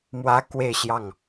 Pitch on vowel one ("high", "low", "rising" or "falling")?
high